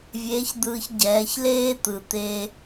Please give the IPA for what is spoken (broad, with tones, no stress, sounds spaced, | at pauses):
vʲ eː˧˥ ç d̪ ɯː˧ ç ɟ ɛː˩˧ ç l eː˥ t̪ ɯ˩ t̪ e˧